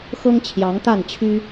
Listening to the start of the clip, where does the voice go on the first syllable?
high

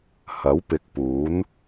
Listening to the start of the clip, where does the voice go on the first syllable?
rising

